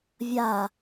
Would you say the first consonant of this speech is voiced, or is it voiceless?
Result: voiced